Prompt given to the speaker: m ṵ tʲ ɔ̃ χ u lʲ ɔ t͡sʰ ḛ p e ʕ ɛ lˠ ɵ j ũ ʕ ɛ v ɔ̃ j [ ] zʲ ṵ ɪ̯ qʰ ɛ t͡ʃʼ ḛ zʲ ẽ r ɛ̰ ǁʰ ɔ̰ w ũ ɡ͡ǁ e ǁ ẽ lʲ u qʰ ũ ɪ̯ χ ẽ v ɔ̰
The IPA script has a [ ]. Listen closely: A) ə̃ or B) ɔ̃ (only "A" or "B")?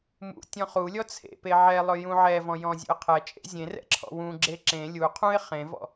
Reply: B